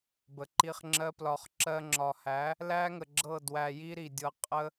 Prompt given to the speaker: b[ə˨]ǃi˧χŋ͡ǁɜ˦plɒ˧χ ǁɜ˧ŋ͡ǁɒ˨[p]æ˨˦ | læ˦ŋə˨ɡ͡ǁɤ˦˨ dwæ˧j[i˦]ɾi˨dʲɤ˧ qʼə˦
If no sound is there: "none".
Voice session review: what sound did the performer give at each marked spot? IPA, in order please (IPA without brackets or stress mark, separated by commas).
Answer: ə˨, h, i˦